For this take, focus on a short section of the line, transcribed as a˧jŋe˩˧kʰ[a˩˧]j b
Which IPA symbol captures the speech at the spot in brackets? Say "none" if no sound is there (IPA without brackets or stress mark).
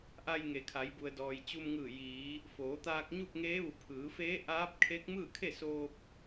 a˩˧